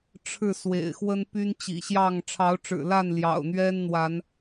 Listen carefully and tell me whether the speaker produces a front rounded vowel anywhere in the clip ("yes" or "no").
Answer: yes